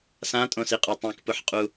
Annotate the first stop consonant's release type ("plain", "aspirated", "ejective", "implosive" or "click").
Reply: ejective